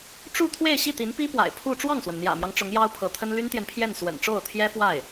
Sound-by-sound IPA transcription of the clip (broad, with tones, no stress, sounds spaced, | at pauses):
ʈ͡ʂ u˥˧ t̪ʰ w e˥˧ ɪ̯ ɕ i˥˩ t̪ i˧˥ n p i˥ p w a̰˨˩ ɪ̯ pʰ u˥˧ ʈ͡ʂ w ɑ˥˩ ŋ s w ə˩ n n̪ j ä̰˨˩ m j ɑ˦ ŋ ʈ͡ʂ ʊ˧˥ ŋ j ɑ˥ ʊ̯ pʰ ɤ˧˥ t̪ʰ ə˥ n l y˥ n t̪ j ɛ˨ n pʰ j ɛ˥˩ n s w ə̰˨˩ n ʈ͡ʂ o˥˩ ʊ̯ t̪ʰ j ɛ˥ f w a˥˩ ɪ̯